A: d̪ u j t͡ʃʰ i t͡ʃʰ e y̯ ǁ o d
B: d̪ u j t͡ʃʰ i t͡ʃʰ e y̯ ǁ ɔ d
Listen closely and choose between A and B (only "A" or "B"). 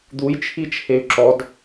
B